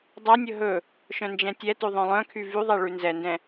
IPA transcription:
dˤ ɛ nʲ ɵ ɦ ɵ | ʃ œ̃ n d͡ʒ ɛ̃ tʲ ɛ t ʉ ðˤ œ̃ lˠ œ̃ kʰ y v y ðˤ ɛ ɭ ʉ n z ɛ n d ɛ̃

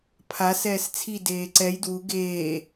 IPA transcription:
pʰ a s ɛː s t͡sʰ i d eː ǀ ɛ j d w u ɡ eː

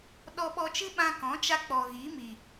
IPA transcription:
ɗ ɔ˧ ɓ ɔ˧ t͡ʃ ɨ˦ ɓ ã˧ k ɔ̃˨˦ t͡ʃ a˧ k͡p ɔ˨ ɣ i˨˦ m i˨

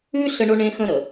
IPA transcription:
ʉ˦ ɬ ə˦ ɳ o˦ ɳ ẽ˦ x ə̃˦ ɾ ə˨

